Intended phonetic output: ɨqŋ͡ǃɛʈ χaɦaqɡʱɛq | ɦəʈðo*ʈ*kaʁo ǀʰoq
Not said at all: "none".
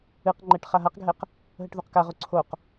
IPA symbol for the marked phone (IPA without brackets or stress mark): q